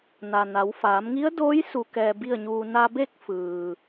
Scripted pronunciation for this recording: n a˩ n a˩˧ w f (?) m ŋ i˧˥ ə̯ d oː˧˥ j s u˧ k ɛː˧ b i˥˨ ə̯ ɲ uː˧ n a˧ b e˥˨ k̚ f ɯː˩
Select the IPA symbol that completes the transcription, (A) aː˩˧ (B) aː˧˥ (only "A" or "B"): A